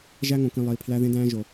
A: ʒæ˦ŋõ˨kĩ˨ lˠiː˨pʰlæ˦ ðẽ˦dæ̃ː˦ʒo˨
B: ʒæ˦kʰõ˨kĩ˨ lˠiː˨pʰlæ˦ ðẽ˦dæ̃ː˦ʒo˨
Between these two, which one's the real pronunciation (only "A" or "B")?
A